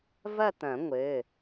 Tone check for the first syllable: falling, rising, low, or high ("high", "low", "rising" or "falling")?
falling